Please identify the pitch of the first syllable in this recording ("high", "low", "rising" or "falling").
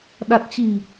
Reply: low